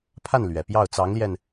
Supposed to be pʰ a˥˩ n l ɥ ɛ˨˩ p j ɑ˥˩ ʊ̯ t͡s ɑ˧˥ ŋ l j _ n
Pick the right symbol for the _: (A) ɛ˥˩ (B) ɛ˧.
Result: B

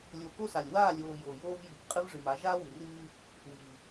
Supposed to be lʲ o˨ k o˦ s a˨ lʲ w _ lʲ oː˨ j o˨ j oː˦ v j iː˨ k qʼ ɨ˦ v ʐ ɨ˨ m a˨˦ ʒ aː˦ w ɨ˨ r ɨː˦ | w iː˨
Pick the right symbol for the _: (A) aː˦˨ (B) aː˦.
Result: A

